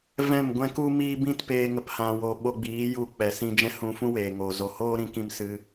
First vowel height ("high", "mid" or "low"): mid